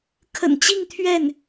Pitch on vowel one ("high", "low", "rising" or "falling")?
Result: low